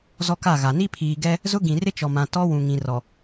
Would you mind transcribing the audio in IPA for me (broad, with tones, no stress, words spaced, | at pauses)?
zɔ˦ka˦˨ɣa˨ ni˦pʰiː˨ɡɛ˦ | zʊ˦ ɡĩ˨rɪ˦t͡ʃɔ˨mã˨ tɔ˦wũ˨ŋĩ˨ rɔ˨